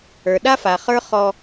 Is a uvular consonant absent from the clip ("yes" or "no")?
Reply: no